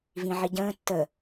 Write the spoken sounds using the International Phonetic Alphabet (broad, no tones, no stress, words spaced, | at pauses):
vĩʕiɟə̃ː tːə